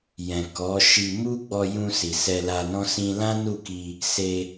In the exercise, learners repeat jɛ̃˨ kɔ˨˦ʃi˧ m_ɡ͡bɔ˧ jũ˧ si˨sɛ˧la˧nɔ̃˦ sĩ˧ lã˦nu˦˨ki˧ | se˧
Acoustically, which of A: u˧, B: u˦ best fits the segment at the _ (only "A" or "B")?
B